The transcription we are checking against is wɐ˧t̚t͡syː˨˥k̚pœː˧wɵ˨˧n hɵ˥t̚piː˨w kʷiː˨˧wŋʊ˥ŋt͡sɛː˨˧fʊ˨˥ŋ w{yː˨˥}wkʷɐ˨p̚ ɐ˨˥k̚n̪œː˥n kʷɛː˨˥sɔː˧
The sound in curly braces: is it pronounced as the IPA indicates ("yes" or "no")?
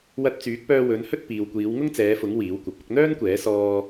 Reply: no